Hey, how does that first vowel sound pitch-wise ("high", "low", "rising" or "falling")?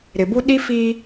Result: low